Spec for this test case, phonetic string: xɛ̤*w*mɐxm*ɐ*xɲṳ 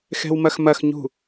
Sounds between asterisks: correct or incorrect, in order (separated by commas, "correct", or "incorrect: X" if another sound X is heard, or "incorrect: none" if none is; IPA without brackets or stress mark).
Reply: correct, correct